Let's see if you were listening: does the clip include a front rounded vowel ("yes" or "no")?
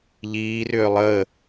yes